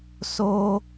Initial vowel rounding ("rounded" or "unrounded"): rounded